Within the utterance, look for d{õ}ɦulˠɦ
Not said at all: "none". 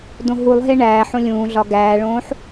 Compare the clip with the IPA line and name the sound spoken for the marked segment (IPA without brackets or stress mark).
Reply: õ